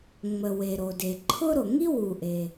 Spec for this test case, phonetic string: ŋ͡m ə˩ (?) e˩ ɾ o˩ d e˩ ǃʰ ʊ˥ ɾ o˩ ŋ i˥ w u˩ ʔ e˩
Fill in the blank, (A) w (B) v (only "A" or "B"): A